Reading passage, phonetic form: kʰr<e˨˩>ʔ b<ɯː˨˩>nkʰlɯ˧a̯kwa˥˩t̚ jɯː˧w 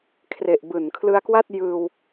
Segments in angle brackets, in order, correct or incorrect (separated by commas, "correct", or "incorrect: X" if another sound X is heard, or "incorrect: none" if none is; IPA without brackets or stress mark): correct, correct